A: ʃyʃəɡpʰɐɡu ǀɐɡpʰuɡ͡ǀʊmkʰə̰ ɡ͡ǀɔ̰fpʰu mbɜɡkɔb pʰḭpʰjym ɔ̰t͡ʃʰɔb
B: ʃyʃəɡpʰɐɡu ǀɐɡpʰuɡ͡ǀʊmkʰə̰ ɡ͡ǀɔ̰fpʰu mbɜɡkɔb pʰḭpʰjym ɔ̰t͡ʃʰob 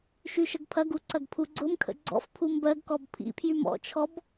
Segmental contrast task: A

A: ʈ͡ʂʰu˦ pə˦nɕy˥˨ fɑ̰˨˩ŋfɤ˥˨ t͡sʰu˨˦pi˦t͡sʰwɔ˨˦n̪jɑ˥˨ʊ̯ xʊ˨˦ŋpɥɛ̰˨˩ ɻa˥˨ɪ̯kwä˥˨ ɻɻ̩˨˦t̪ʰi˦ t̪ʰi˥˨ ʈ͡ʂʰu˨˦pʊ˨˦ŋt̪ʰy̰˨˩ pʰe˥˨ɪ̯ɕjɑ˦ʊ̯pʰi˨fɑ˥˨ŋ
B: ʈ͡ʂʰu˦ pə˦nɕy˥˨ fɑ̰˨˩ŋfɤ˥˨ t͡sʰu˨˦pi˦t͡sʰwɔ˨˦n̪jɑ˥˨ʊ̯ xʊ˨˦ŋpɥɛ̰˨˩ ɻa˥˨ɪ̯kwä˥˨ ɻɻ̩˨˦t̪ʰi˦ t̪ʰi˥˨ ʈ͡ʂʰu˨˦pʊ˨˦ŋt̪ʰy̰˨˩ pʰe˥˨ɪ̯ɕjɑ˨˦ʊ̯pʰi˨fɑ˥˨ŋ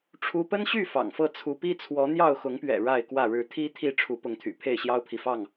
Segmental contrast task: A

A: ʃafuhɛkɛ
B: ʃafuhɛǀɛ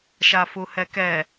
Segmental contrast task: A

